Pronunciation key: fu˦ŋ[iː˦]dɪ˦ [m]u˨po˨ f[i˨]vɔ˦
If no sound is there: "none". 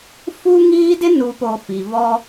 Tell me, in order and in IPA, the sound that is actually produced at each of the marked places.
iː˦, n, i˨

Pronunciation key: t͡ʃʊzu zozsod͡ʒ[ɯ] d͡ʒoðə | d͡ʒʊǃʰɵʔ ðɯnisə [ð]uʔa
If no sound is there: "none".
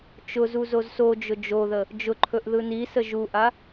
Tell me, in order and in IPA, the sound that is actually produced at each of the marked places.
ʊ, ʒ

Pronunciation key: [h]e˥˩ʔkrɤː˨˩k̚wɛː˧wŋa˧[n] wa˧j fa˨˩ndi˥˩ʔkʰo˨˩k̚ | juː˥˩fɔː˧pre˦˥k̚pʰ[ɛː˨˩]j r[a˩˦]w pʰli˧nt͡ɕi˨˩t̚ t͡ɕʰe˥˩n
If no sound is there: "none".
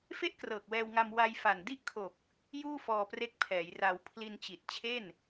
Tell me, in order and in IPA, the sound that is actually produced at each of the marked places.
f, m, ɛː˩˦, a˧

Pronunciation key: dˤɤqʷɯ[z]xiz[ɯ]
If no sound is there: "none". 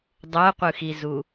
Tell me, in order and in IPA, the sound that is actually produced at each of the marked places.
none, u

